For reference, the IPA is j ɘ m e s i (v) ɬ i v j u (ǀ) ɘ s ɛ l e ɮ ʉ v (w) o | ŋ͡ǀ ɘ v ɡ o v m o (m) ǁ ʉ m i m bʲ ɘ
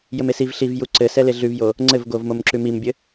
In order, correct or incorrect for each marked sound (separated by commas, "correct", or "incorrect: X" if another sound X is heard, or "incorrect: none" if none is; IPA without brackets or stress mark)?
correct, correct, incorrect: j, correct